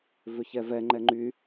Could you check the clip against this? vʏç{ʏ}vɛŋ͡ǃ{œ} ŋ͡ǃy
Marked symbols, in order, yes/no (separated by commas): no, no